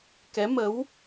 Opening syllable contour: rising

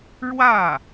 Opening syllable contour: falling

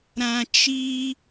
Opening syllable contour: low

